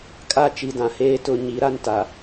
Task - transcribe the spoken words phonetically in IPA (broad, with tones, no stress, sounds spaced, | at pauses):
kʼ a˦ t͡ʃ i˨ d ã˨ h eː˦ t ʊ˦˨ ɲ i˨˦ ɾ a˦ n t a˨